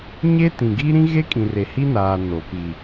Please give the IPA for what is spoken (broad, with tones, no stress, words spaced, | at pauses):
ɲe˦tĩ˨ɡi˦ ɾĩ˦ɣe˦kʼĩ˨re˨ hi˦naː˨ no˨ pi˨